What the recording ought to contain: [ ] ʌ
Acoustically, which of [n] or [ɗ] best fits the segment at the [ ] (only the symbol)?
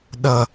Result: ɗ